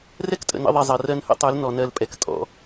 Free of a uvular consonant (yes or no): yes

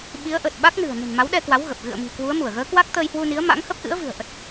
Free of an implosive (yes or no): no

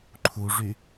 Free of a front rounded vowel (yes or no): no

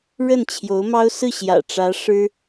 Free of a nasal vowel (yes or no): yes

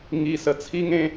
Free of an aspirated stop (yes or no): no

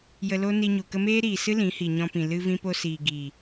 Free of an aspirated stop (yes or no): yes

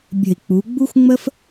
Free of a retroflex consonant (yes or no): yes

